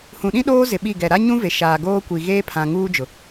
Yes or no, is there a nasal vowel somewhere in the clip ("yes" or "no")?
yes